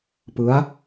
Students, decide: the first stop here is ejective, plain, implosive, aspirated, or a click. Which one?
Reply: plain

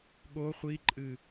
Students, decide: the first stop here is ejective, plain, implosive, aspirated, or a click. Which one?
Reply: implosive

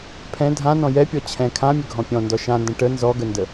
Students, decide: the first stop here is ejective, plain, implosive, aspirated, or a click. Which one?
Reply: aspirated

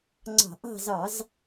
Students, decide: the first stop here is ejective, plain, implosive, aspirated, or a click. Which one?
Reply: click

